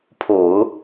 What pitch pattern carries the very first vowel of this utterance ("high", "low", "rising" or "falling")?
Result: low